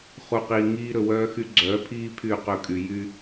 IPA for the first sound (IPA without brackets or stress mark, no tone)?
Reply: χ